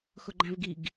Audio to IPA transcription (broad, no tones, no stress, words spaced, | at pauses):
xʊɡ͡ǃæ̃vɡiɡ